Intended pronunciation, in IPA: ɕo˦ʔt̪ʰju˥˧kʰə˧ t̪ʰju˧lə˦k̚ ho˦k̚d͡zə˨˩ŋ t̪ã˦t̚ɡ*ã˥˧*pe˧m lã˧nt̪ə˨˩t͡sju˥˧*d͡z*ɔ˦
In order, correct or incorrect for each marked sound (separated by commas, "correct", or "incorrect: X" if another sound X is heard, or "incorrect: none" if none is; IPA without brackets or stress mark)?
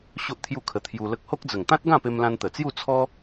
correct, incorrect: t͡sʰ